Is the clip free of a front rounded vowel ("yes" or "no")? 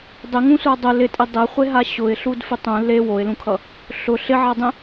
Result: yes